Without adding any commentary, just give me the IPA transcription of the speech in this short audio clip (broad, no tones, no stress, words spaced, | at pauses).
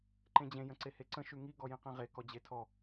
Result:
ǃẽd͡ʑẽ jə̃ǀeheǀə̃ ʃʉŋi ɡɔjĩqĩʁe kɔd͡ʑetʰɔ